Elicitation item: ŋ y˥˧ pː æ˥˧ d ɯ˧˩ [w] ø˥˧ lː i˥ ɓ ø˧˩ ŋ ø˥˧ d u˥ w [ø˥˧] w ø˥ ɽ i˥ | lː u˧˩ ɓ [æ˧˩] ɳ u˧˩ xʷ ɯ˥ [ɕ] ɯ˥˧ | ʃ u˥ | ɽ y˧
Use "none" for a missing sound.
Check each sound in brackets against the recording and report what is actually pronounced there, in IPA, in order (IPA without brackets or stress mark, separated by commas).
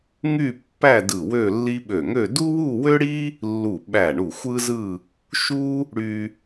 w, u˥˧, æ˧˩, z